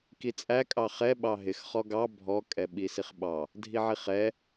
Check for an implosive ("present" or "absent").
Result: present